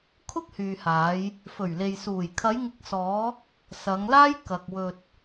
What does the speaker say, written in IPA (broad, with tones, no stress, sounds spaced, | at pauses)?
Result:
kʰ ʊ˥ k̚ h yː˨ h aː˨˧ j | f ɵ˨˩ ɥ l e˨ j s uː˨˩ j kʰ ɐ˨˧ j ŋ ɪ˨˥ k̚ s ɔː˨˧ | s ɐ˨˧ ŋ l aː˥ j k ɐ˨ k̚ w ɵ˨ t̚